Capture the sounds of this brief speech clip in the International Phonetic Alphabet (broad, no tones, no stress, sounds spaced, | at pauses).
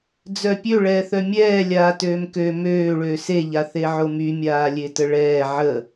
d͡z œ pʲ ø ɭ ɛː θ œ mʲ ɛː lʲ aː t øː m k ø m øː ɭ øː s e ʎ a θ e ʕ o m y mʲ aː lʲ e t ə ɭ ɛː ʕ ə